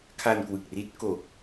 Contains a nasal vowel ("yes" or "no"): no